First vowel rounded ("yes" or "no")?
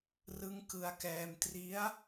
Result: no